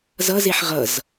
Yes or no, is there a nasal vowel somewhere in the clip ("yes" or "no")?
no